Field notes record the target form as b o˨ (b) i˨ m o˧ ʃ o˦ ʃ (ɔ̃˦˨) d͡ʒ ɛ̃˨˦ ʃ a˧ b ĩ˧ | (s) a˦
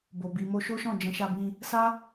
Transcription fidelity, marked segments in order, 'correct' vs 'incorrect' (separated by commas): correct, correct, correct